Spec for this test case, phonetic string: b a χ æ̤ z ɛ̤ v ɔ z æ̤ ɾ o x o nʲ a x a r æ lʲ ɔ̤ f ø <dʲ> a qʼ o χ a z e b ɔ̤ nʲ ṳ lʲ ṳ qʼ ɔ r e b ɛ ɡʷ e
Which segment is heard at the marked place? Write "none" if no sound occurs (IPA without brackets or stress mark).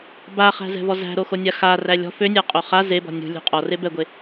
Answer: nʲ